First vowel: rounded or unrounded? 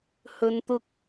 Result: rounded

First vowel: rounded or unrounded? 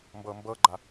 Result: unrounded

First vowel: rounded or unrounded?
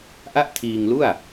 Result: unrounded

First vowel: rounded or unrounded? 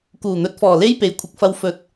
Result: rounded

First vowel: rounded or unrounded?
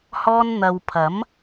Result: rounded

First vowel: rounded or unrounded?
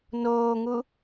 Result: rounded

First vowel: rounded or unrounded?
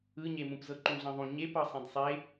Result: unrounded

